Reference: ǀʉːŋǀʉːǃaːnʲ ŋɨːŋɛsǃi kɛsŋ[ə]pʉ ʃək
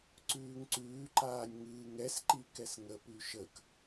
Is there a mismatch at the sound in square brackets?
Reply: no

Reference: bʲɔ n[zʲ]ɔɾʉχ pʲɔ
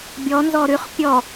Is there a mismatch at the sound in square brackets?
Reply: yes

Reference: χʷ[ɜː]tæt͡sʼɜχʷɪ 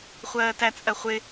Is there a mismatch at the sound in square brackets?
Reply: no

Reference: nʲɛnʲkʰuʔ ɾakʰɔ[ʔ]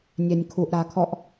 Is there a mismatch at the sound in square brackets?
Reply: no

